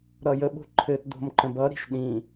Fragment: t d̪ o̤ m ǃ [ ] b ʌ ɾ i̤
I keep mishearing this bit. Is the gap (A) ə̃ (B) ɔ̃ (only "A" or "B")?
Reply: A